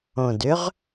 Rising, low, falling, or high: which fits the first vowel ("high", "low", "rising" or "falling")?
low